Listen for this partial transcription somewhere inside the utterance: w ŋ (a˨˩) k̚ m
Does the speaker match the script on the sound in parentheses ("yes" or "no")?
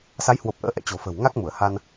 no